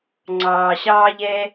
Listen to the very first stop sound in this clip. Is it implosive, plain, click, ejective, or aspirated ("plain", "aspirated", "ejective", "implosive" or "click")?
click